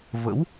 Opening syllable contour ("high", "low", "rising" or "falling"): rising